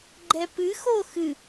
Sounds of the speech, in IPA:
ɡ͡ǃɛpɨx oxɨ

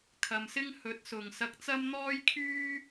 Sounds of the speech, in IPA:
kʰɐ˨msɪ˥ŋ hɵ˨˥t̚sʊ˨ŋsɐ˧k̚t͡sɐ˥m n̪ɔː˥jkʰyː˥

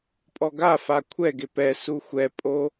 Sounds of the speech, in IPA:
pʼɔɡafa kʷʰɛɡe pɛ suxʷɛpʼo

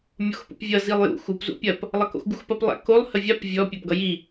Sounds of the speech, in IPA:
mʲoxpṵpvʲʌ zilˠjṵ xup zṵpʲɐp | lˠɐko̰xɡuxpɐp lˠæ̰kolˠ həvʲap vʲɔ pʲæpɡʌji

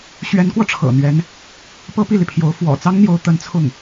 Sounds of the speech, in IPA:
ɕɥɛ˧˥nkwɔ˧ ʈ͡ʂʰɤ̰˨˩n̪ɥɛ˧˥n | pɤ˥pi˥˩li˩pʰjo˧˥ʊ̯ fwɔ̰˨˩t͡sɑ˥ŋn̪jo˧˥ʊ̯ t̪ə˧˥nt͡sʰʊ˥˩ŋ

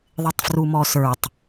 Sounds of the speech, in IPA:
ðˤɪtˤfrumɔsə˞tˤ

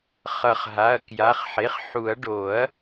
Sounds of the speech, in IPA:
χʌ˨˩˦χɦa˩˧˩ɐ̯ kja˩˧˩χħe˩˧˩χħu˨˩˦ɐ̯ ɖo˨˩˦ɐ̯

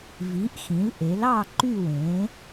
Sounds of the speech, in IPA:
vi˩˥ʔxĩ˩˥lʔe˩˥lɑ˥˨ ǃy˥˨wẽ˩˥

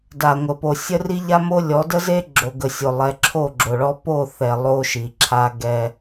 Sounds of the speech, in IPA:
da˨ŋʷə˨ po˨ sʲə˦ri˦ʎa˦mo˦ lʲɔ˨˦də˦ze˦ ɡ͡ǁo˨ɡə˨sʲo˨ lˠɛ˨˦ǁʰo˦˨ɡ͡ǁo˨ɭɔ˦ po˦˨θɛ˨ lˠo˦ʃi˨ ǁʰa˦ɡɛ˦

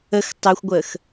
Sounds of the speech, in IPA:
əx tˤɜxʷɡʷəːx

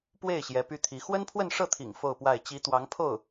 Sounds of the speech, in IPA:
pwe˥˩ɪ̯ ɕjɛ˧˥py˥t̪ʰi˧˥ xwə˥npʰwə˥˧nʂɤ˥˩t̪ʰḭ˨˩ŋ fo˥˧ʊ̯pwa˥˩ɪ̯ t͡ɕi˧˥ t̪wɑ˧˥ŋpʰo˥˩ʊ̯

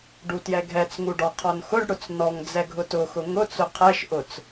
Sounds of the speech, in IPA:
ɖutjɛɡʱɛt͡sŋu ɖɔqʰɔnxʊɖɽʊt͡s nɔŋd͡zɛ ɡʱʊtʊxʊ ŋʊt͡sʊ qʰɛʃʔʊt͡s

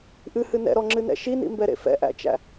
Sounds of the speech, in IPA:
ʔɨhɨ nɛ̰ɾɔŋ͡ǁɨnɛ̰ ʃinḭmbɛɾḛ fɛ̰ʔæ̰t͡ʃæ̰

